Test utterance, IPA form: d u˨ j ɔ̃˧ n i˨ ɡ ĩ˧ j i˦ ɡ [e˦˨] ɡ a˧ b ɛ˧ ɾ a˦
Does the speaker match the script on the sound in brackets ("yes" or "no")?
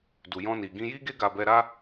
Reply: no